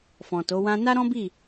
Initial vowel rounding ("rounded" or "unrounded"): rounded